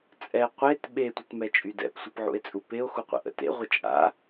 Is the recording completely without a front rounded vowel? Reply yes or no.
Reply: no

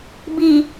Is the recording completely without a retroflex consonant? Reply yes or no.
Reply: yes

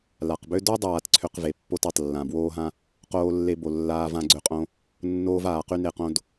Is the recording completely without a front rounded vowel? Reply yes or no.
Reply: no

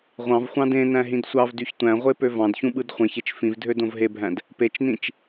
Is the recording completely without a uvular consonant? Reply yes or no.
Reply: no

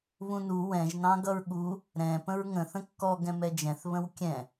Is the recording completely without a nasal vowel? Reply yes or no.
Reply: no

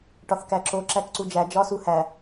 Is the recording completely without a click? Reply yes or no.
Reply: no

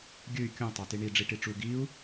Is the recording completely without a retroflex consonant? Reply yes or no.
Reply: no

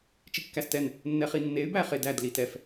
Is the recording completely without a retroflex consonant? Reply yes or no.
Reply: yes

